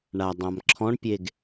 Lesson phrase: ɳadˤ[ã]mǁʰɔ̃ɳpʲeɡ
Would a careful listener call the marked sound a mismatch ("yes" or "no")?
no